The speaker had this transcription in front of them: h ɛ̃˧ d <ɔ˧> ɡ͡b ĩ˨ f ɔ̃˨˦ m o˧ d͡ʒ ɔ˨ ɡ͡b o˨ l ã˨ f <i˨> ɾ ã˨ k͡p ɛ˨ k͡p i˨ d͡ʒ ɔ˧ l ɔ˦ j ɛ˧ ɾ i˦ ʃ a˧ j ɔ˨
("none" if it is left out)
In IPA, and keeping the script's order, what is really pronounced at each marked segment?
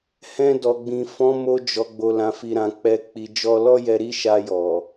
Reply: ɔ˨, i˨

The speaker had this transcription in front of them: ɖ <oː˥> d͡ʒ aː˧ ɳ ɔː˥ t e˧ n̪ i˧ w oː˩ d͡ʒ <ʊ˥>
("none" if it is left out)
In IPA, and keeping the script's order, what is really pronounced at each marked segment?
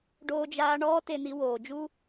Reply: oː˧, u˥

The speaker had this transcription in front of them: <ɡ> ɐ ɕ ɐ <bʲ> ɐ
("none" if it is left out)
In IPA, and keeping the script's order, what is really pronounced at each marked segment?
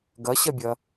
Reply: ɡ, bʲ

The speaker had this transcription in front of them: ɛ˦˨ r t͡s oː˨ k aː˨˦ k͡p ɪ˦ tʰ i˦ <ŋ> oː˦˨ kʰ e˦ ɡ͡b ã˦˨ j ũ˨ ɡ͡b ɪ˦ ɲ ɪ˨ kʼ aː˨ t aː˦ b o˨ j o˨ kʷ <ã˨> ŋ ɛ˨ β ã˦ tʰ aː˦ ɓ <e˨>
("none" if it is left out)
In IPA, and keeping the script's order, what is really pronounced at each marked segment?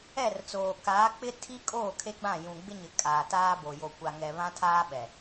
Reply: kʼ, a˨, ɛ˨

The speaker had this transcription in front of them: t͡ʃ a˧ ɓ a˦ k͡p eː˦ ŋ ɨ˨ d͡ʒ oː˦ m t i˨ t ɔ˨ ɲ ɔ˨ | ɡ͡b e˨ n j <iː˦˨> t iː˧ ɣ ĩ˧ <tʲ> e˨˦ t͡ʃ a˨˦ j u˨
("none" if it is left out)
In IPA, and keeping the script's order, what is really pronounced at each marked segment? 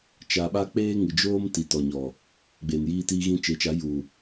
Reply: iː˧, t͡ʃ

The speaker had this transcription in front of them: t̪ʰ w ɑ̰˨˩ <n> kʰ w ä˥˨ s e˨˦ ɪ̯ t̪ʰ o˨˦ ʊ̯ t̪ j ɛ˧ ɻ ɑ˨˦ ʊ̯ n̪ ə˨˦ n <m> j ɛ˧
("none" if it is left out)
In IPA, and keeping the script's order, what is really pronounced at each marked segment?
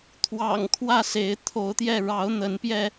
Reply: ŋ, p

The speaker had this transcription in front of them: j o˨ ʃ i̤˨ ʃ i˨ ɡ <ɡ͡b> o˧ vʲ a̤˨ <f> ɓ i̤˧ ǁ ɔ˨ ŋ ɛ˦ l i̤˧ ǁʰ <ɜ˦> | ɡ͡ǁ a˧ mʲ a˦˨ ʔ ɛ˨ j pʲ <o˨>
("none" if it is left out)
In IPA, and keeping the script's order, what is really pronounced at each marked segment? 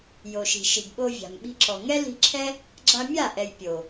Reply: ɓ, m, ɛ˦, o˨

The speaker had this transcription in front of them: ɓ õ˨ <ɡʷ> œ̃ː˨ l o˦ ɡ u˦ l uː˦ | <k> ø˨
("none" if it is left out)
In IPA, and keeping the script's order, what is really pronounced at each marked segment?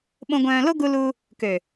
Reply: ɡʷ, k

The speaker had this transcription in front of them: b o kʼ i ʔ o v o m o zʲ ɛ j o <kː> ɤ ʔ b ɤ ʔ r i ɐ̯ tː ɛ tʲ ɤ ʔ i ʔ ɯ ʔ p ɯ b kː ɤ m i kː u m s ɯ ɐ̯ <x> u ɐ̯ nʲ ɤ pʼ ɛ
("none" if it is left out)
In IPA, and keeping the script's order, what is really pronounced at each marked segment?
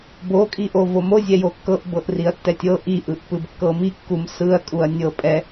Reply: kː, kʼ

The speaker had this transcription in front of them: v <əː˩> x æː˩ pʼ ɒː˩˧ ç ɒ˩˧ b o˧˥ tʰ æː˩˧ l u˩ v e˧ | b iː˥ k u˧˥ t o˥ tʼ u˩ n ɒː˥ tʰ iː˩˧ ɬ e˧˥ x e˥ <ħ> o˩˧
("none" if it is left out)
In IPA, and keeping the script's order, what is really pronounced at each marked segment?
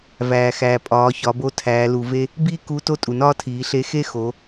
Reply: æː˩, x

